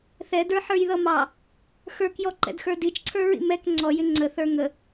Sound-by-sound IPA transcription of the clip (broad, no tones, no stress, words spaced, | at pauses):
θɛdə˞ħə˞jðʌ mɑ | xə˞kjɔǃɛ̰dxə˞ dit͡ʃǀʰə˞ɹḭ mɛk ŋ͡ǀɔjɪ ŋ͡ǀəθə˞ ŋə